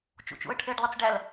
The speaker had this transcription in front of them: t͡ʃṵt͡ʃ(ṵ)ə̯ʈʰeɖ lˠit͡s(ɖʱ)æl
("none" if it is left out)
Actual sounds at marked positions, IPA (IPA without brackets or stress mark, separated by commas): ṵ, ɖ